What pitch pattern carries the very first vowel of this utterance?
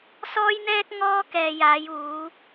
high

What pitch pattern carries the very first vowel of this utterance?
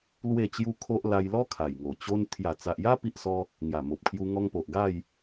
falling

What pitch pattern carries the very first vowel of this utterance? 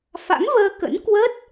rising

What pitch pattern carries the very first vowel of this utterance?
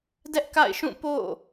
high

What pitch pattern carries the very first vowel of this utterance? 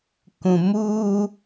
low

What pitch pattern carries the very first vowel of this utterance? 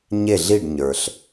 falling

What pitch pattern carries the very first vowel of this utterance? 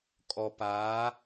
low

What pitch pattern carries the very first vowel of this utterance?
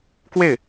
falling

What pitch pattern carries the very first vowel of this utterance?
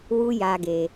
high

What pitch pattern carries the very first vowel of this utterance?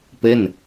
falling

